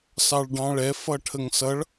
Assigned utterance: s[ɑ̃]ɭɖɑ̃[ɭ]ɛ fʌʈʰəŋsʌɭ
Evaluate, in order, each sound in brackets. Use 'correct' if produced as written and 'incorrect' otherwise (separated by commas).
incorrect, correct